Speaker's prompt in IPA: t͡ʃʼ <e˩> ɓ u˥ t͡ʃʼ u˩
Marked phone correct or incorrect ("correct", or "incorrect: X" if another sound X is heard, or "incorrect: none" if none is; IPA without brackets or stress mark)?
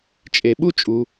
correct